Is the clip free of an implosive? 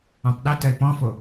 no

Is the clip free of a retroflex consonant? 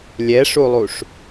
no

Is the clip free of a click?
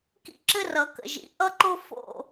no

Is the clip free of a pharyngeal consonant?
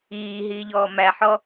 no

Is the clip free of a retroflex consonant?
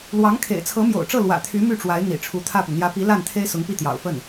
no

